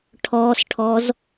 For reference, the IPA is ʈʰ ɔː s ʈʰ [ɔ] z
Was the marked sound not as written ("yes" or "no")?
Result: no